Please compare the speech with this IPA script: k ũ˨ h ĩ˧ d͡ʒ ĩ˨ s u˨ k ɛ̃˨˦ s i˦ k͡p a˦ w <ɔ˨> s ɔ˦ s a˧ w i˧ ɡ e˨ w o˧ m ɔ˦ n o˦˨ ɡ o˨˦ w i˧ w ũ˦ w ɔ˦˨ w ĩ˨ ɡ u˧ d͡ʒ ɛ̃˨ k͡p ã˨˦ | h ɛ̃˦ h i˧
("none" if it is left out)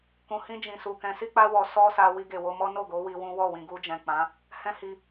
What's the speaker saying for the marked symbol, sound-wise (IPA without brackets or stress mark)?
ɔ˧